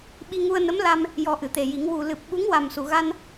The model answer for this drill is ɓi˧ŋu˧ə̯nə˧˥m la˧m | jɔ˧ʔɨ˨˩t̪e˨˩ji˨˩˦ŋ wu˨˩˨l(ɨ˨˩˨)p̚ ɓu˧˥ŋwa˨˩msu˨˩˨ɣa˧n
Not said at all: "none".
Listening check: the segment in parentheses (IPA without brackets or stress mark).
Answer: ɨ˨˩